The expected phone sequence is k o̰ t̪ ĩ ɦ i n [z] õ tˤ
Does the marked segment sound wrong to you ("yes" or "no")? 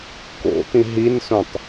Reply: yes